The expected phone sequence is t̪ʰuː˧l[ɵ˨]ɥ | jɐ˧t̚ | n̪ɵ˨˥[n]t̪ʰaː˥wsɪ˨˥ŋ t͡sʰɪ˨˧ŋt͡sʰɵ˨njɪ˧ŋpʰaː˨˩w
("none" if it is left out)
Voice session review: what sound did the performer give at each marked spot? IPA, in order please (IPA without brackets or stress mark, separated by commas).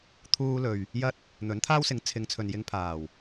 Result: ɵ˨, n